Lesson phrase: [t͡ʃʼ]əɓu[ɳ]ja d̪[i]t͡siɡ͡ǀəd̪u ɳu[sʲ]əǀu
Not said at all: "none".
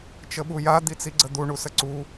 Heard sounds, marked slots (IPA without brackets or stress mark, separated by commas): t͡ʃ, none, i, s